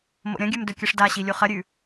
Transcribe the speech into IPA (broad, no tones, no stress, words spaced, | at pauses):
mo̰ɾʲɐ̃ɡʲʉm dɵkʲɨʂdaɕi lʲuχɐɾʲʉ